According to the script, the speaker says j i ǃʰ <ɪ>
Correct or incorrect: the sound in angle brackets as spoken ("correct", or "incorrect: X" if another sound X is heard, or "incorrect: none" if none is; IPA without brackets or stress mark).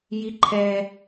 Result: incorrect: ɛ